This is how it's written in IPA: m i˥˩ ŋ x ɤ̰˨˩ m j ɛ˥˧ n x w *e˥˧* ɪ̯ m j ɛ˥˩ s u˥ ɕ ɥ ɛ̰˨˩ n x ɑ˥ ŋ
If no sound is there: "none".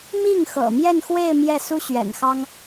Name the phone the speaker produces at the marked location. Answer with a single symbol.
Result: e˥˧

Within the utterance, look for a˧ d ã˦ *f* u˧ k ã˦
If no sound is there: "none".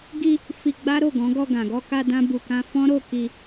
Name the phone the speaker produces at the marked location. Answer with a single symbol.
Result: b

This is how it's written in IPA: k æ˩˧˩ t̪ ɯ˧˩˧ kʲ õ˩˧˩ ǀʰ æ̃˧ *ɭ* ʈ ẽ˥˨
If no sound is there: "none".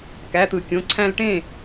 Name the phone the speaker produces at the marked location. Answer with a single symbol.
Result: l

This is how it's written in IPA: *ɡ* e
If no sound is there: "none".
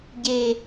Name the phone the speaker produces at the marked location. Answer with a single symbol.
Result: ɟ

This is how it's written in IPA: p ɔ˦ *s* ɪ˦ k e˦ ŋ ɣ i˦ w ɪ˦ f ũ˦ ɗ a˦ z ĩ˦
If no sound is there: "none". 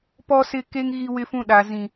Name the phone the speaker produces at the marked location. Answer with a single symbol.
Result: s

